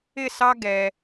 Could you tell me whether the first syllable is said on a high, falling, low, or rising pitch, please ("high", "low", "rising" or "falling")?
falling